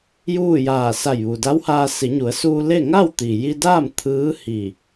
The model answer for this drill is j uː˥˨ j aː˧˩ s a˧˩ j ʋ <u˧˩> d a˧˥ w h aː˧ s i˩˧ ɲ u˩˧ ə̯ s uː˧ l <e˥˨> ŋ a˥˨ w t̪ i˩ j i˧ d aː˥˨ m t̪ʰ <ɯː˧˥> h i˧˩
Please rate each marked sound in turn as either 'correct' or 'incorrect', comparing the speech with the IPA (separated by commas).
incorrect, correct, correct